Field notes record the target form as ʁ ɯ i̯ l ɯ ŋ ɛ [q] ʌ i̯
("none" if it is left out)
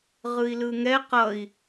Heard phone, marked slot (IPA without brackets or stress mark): q